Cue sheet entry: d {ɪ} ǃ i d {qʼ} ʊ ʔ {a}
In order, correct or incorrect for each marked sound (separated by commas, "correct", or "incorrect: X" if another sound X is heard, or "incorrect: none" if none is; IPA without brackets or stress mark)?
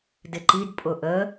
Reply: correct, incorrect: pʼ, incorrect: ə